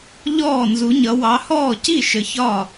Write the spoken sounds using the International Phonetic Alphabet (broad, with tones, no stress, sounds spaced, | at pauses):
ʎ ɔː˥˩ n z u˨˦ ɲ ʌ˨˦ w ɑ˨˦ h ɔː˥˩ c i˥˩ ʃ ə˨˦ ç ɒ˥˩